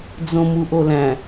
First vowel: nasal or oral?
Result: nasal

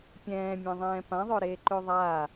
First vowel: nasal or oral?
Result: nasal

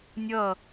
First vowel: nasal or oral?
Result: oral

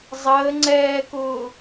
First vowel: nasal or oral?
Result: oral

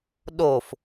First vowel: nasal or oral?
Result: oral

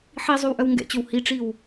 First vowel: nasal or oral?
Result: oral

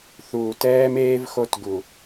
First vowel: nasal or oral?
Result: oral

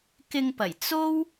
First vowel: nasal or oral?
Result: oral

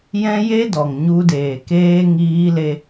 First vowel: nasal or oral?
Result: nasal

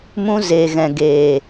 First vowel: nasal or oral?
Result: nasal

